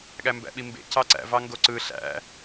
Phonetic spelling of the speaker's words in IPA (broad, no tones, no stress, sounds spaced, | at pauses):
ɠ æ m b æ̰ ɓ i m b ḛ c ɑ ǀ æ̰ v ɑ ŋ ɡ o ǀ ɯ ɬ æ̰